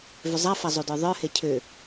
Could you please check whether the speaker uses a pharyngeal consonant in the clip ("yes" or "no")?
no